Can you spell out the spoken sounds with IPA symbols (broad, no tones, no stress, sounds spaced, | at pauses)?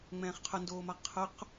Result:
ŋ͡m ɛ̃ː χ qʰ ʊ n d oː m a qʰ ʊ q